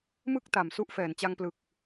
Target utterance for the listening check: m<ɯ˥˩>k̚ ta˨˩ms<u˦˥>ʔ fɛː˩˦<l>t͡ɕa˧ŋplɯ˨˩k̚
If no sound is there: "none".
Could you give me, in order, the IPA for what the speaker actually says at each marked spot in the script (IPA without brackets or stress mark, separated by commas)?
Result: ɯ˥˩, u˦˥, n